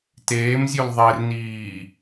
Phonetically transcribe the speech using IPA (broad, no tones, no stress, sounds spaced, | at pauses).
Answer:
t eː m zʲ u l ðˤ e r n iː